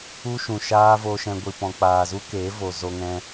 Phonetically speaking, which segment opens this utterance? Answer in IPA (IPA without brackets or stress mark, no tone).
u